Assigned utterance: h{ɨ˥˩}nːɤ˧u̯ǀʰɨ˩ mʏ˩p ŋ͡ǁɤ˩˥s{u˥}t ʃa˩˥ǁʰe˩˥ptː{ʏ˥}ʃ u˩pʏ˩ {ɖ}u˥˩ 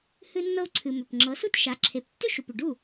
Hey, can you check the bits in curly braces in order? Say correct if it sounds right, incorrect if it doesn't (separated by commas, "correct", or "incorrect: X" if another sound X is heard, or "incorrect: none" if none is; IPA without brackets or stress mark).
incorrect: ɨ˧, correct, correct, correct